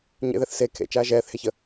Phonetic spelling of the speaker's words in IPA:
ɲḛðɛθ se kʰḛt͡ʃaː ʒɛːθheçə

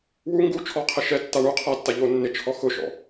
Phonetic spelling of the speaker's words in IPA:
wu ŋɡu t͡ʃʰɔqʰɪ ʃɛtːa ɳu qʰatːa ʎo nːɪt͡ʃʰɔ xʊʃɔ̰

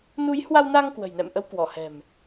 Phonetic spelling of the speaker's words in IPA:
nu˨˦jhwa˧wnaː˧ŋ kwə̤˨˩jnɛ̰˧˨mʔə˨˦w kwɔ˧˩hɛ̤˨˩m

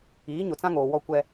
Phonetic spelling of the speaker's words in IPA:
iː˨˦ɲʊ˨t͡sã˦ŋoː˨ wɔ˦ kʷɛ˦

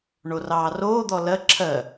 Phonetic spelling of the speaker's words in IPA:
ɳorɑːroːd̪ɔ lɜ ǁʰɜ

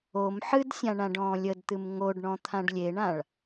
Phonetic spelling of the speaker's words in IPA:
om ħɨdsʲãɳãɖ ɔ̃ːlʲədt̪ɨm ŋoɖɳɔ̃ t̪ʰãɖlʲeɳãɭ

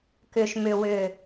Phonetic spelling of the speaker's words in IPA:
kʏ˨ʃmʏ˨wʏ˨

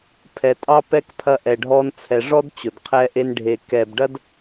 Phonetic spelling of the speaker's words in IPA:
pʰɛ˨ tʼɑ˧pɛ˧k pʰɐ˧ʔɛ˨ɖʱɔ˧nt͡sʰɛ˨ ʐɔ˦d t͡ɕʊ˨dqʰɛ˧ʔe˧n ɖʱe˨ kɛ˨bɖɐ˦d

